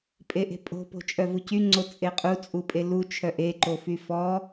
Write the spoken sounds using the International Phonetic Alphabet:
pʼ e ʔ e̤ pʼ o̤ p o̤ t͡ʃʼ œ v u c y ŋ͡ǀ o t͡sʼ e qʼ u t͡sʼ u pʼ e l u t͡ʃʰ œ ʔ e ǃ o f y f ɔ

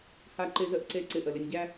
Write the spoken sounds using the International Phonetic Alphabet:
h a˨ ǃ ɪ˨ z ə˨ ʔ ǀ e˨ ǀ ɪ˨ ʔ ə˩ l ɪ˨ nʲ ɟ æ˦

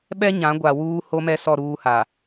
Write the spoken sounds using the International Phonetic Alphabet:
ɓ ɛ˦ ɲ ã˨˦ ɡʷ a˨ w uː˦ h o˦ m ɛ˦ s ɔ˦˨ ɾ uː˦ h a˨

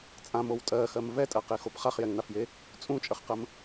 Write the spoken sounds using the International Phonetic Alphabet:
t͡sʼ ã m o w tʼ ɜ x ɜ m v ɛ tʼ ɜ q e x o p χ a χ j ɛ ŋ n a f j e | t͡sʼ ũ t͡ʃʼ ə χ q ə m

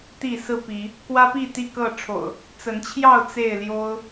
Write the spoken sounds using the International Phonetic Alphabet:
t̪ i˥˨ s ɹ̩˥˨ p i˨˦ | k w ä˦ p i˥˨ t̪ i˥˨ k ɤ˥˨ ʈ͡ʂʰ o̰˨˩ ʊ̯ | t͡s ə˨˦ n t͡ɕʰ j ɑ˥˨ ʊ̯ t͡s e˥˨ ɪ̯ l j o˦ ʊ̯

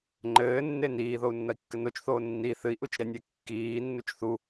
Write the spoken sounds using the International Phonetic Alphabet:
ŋ͡ǃ ɘː nː e n iː ð o u̯ nː ɐ i̯ kː ɘ n o t͡ʃ θ oː nː i θ ɨ i̯ ʔ u t͡ʃ ɾ ɛ nʲ ɛ kː iː nː u t͡ʃ θ u

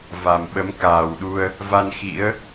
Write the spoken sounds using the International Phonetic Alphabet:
v a˨˩ m ɓ ə˨˦ m k aː˨˩ w ɗ u˧ ə̯ | v a˧ n x ḭ˧˥ ə̯

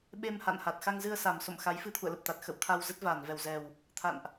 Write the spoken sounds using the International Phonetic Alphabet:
ɓ e˧ m h a̰˧˨ n h a˨˩ t̚ x a˧ ŋ z ɨ˧ ə̯ s a˨˩ m s o̰˧˨ m x a˨˦ j f ɨ˧ t̪ʰ ṵ˧˨ ə̯ l ə˨˩ p̚ t̪ a˨˩ t̚ x ə̰˧˨ w t̪ʰ a˧ w z ə˦˥ t̚ v aː˧˩ n v ɛ˧˩ w z ɛ˨˩ w | t̪ʰ a̰˧˨ n ʔ

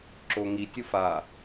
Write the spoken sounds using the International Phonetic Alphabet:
ǁ o ŋ i tʲ u f a

